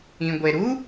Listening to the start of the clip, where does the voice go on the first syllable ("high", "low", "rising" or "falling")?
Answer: low